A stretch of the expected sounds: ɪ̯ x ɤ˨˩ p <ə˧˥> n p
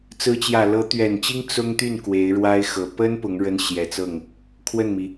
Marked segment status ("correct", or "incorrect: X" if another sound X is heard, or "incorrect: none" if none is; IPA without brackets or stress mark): incorrect: ə˥